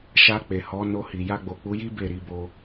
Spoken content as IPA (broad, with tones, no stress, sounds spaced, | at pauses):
ʃ a˧ k͡p e˨ h ɔ˨˦ n o˧ h i˨ j a˧ ɡ͡b o˨ k͡p u˨˦ j i˦ b e˦˨ ɾ i˨˦ b o˧